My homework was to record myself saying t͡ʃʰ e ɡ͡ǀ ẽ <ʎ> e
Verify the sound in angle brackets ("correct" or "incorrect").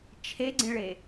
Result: incorrect